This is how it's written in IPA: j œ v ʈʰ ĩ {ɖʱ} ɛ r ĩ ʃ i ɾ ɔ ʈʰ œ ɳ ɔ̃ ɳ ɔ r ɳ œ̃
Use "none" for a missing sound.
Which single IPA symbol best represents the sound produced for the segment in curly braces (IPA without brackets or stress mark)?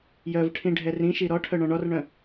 ɖʱ